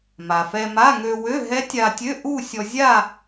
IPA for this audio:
m a˩ f ɛ˧ m a˧˥˧ ŋ ø˧ w ø˧˥˧ ɦ ɛ˦˥ tʲ a˧ tʲ ø˧˥˧ ʔ u˥˧ sʲ ɔ˧ zʲ a˥˧

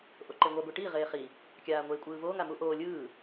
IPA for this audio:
ʔ o ǃ e ŋʷ a ɡʷ i ʈ i ʁ eː χ i | kʲ aː ŋʷ eː kʷʼ ɯː v oː ŋ a m u ʔ oː lʲ ɯː

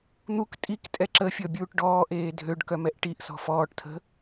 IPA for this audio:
n̪ u k tʼ i k tʼ ɛ ǁ ə fʲ ɔ bʲ uː ʈ ɖ ɔː ʔ eː dʱ ø ɖ k œ m ɛ ʔ ʈ i ʔ s ɔ̤ f ɔː ʈ tʰ ə̤

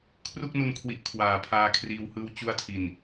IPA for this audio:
kʰ r u˥˩ k̚ n u˧ n kʰ w i˨˩ ʔ kʰ w aː˨˩ pʰ aː˧ kʰ r iː˧ w h ɯː˦˥ w t͡ɕ u˧ a̯ tʰ i˨˩ n

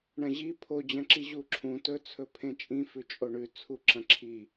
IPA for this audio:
ɳ ɐ̃ ʑ i pʰ o d͡ʑ ɐ̃ ǁ i ʑ u ǁʰ ũ t ɵ t͡sʰ ɵ pʰ ẽ t͡ʃʼ ĩ f ʉ t͡ʃʼ o ɳ ʉ t͡sʰ u ǁ ɐ̃ ǁʰ i

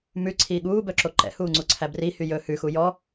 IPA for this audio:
m ʉ ǀʰ iː ɠ uː b œ ǁ o ǃ ɛ̰ h uː ŋ͡ǀ u ǀʰ æ b r i h y j ɵ h ʉ x u j ɔ

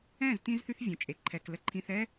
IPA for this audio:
ɛ̃˦˨ z t ĩ˧ z θ y˧ θ vʲ ə̃˨ t͡ʃʼ e˨ ǃʰ ɛ˨ k l ə˧ ǃʰ ĩ˧ θ ɛ˦

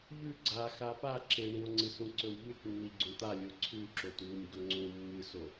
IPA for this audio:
ʎ ʉ ɡ͡ǀ a x a p a ǁ e ɳ ĩ o̯ ŋ͡ǀ ɨ s ũ ǀ ɵ w ʎ ʉ t nː i ɡ͡ǀ ũ t̪ a lʲ o ǀʰ ʉ ǁ o t w u nʲ ɡ ɵ ŋ͡ǀ ũ mː ɨ s o

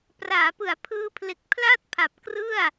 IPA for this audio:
p r aː˩˦ p ɯ˩˦ a̯ pʰ ɯː˧ pʰ l e˨˩ k̚ pʰ l a˥˩ t̚ pʰ a˨˩ p̚ k r ɯ˥˩ a̯

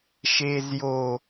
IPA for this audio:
ʃ eː z j o

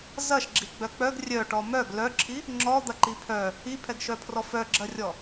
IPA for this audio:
z ɐ ʃ ɡ͡ǁ i ɡ͡b œ k͡p œ ɡ rʲ œ ʈ ɔ m œ ɡ l œ ǁʰ i | ŋ͡ǁ ɔ d̪ ɐ ǃ i pʰ œ | i pʰ ɛ ɡ ʃ œ pʰ r ɔ f œ ɡ͡ǁ ɐ rʲ ɔ

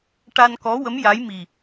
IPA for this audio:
ʈ a˧ n k ɔ˧˥ w ə˧˥ m j a˧˥ j m i˨˩

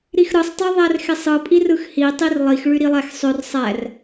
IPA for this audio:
ɾ i x ɾ ɯ sˤ tˤ ø ðˤ æ r x e sˤ ɯ pʼ i r ɯ x h i tˤ i r lˠ i x ɭ y ɾ i lˠ æ x sˤ ø r sˤ æ r

